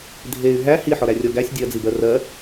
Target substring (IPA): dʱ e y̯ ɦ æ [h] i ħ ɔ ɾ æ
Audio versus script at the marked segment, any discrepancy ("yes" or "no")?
no